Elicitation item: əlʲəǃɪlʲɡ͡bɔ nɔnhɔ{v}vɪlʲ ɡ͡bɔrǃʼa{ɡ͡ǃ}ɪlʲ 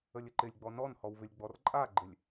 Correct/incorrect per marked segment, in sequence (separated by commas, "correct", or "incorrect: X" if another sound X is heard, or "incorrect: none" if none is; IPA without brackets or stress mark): incorrect: w, correct